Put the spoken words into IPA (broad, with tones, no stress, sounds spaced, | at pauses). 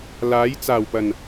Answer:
l aː˨˥ j t͡s aː˨˩ w p ɐ˨˩ n